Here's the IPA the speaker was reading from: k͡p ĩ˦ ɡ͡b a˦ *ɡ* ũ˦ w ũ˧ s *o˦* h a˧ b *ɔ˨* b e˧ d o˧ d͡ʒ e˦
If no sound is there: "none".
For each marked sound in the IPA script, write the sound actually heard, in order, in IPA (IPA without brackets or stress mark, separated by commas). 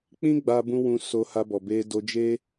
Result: b, o˧, ɔ˨